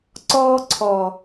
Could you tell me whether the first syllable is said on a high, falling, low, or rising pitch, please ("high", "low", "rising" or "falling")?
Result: high